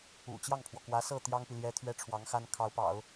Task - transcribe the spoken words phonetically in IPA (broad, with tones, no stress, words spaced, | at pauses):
ṵ˨˩t͡ɕjɑ˥˩ŋpʰwɔ˩ kwä˧˥ sɤ˥˩ t̪jɑ˥ŋpi˨ ljɛ˥t̪ʰɥɛ˥ ʈ͡ʂʰwɑ˧˥ŋxa˥n kʰɑ˧˥ʊ̯pɑ̰˨˩˦ʊ̯